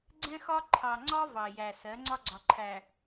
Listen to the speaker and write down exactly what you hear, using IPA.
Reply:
ɡ͡ǀ ɛ̃˦ x ɒ˦ ǃʰ ɑ˨ ŋ͡ǀ ɒ˦ v ɑ˨ j æ˨ s ɜ˨˦ ŋ͡ǀ ɒ˦ ɡ͡ǀ ɒ˨ ǃʰ æ˨

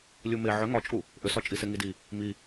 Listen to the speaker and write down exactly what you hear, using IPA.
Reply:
lʲ u m e ʕ ʏ ŋ ɒ t͡ʃʼ u | ʔ ʏ s ɒ t͡ʃʼ i s e ŋ i d i | m i

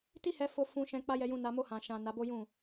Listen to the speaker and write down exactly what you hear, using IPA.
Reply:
t i˦ h ɛ˧ f o˧ f ũ˧ ʃ ɛ̃˧ k͡p a˦ j ɛ˧ j ũ˧ n a˧ m o˧ h ã˨ ʃ ã˨ n a˨˦ b o˦ j ũ˦˨

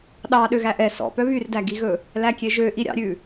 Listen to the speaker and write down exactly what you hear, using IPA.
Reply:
ɗ ɑ ɗ ø ɣ æ ʔ ɛ s ɔ̰ p œ β y r d æ ɡ i ɣ ɵ | l æ kʲ e ʒ ø ʔ i ɾʲ ɑ̰ ɾʲ ʉ

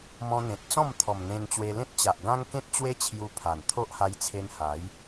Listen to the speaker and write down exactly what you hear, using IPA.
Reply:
m ɔ̃˧ n̪ ẽ˨ t̚ t͡s ɔ̃˥˧ m t̪ʰ ɔ˨˩ m n̪ ẽ˧ n t͡ɕ w e˧ l ẽ˦ t̚ t͡ɕ a˨ ʔ ɡ ã˦ ŋ k ẽ˦ t̚ t͡ɕ w e˦ t͡ɕʰ j u˧ pʰ a˨˩ n t̪ʰ o˦ ʔ h a˧ j t͡sʰ e˧ n h a˨˦ j

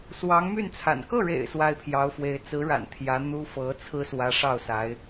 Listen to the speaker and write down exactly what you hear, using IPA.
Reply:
s w ɑ˧˥ ŋ m y˥˩ n t͡sʰ a̰˨˩ n k ɤ˥˩ ɻ ḛ˨˩ ɪ̯ s w a˥˩ ɪ̯ pʰ j ɑ˧˥ ʊ̯ f w e˧˥ ɪ̯ t͡s ɹ̩˧˥ ɻ a̰˨˩ n t̪ʰ j ä˧˥ n̪ u˥ f ɤ˧˥ t͡sʰ ɹ̩˥ s w ä˧˥ ʂ ɑ˥˩ ʊ̯ s a˧˥ ɪ̯

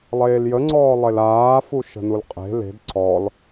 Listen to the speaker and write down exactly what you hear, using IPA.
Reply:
lˠ eː l j ə ŋ͡ǀ ɔː lˠ e l aː f u ʃ ə̤ n u l qʼ e̤ l e̤ d ǀʰ ɔ l

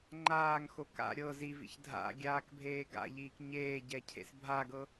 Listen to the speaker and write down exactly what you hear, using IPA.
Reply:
ŋ͡ǃ aː ŋ x o k a̰ ɾʲ ɤ z i v ḭ ç dʱ a̰ ɡʲ aː k bʱ eː ɡ a̰ ʎ iː k ɲ eː ɟ ɛ cʰ ḛ s bʱ a ɡ ɤ

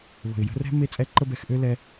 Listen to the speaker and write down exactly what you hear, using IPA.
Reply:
β ə̤˨ ɪ̯ j ə̤˧ r ɛ̤˦ m e˦ t͡sʼ ɛ˦ ǃ ə˧ b ɛ˧ x ʔ ø˦ l ɛ˧

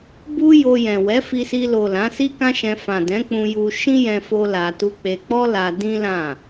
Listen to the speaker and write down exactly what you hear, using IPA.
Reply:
b u˦ j o˧ j ɛ̃˨ w ɛ˨˦ f i˧ s i˧ l o˨ l ã˨˦ s i˦ k ã˦ ʃ ɛ̃˧ f ã˨ d ɛ̃˨˦ k͡p ũ˧ j u˧ ʃ ĩ˦ j ɛ̃˧ f o˦ l a˧ t u˦ k͡p e˧ k͡p ɔ˦ l a˧ d ĩ˦ l ã˦˨

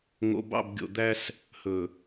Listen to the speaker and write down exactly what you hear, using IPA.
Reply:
ŋ o̰˨ b ɑ̰˦˨ b ɡʲ o̰˨ d̪ æ˦ s | h ɵ˨

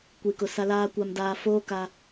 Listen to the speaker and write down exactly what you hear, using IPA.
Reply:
kʷ i˨ k ʊ˨ s a˦ l aː˦ kʷ a˨ m d aː˨ f oː˦ k a˦

